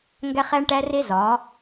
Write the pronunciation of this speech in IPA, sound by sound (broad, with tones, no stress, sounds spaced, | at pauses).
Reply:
ŋ ɡ æ˦ χ æ˦ ɳ ʈ æ˦ r e˦ z ɒ˨˦